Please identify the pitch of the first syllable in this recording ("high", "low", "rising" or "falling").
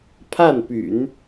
falling